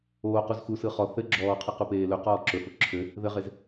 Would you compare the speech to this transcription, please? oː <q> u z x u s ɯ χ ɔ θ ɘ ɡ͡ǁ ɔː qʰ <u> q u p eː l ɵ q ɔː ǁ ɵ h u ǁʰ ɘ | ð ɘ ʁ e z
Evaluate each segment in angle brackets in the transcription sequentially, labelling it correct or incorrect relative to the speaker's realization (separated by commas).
correct, incorrect